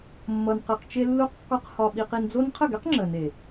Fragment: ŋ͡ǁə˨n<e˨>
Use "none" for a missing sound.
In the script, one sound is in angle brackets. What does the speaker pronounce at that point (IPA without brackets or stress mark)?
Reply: e˨